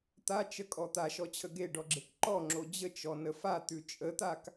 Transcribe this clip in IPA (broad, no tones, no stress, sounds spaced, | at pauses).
t̪ a t͡ʃ ə kʼ ɔ t̪ a ʃ ɔ t͡ɕʰ ə ɡ e ɖ ɔ ɡ͡ǁ e k ǃ ɔ ŋ͡ǁ o d͡ʑ ə t͡ʃ ɔ n ə f a t̪ ʉ t͡ʃʼ ə t̪ a k